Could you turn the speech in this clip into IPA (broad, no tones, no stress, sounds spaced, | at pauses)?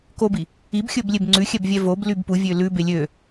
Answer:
k o b i | i b xʲ ɵ b lʲ e b ŋ͡ǀ ʉ xʲ ɛ b vʲ ɛ v o b l y b p u vʲ ø l ʉ b e lʲ ø